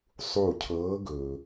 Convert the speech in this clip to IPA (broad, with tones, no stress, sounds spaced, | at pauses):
sˤ u˧˩ cʰ ɤː˨˦ ɡ ɵː˩